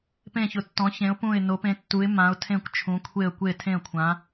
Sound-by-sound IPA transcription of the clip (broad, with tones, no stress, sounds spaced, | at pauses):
p ẽ˧˩ ç ʊ˩˧ tː ɔ̃˩˧ ç ẽ˩˧ ʊ̯ p ũ˧˩ ɪ̯ n o˩˧ p ẽ˩˧ tː u˩˧ ɪ̯ m ã˩˧ ʊ̯ tʰ ẽ˧˩ kʷ t͡ʃʰ ũ˩˧ kʷʰ e˧˩ ə̯ kʷ e˧˩ tʰ ẽ˧˩ ə̯ kʷʰ ã˩˧